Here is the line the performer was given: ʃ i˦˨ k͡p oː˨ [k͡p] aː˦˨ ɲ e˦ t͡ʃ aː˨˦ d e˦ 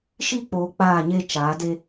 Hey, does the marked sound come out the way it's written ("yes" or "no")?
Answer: yes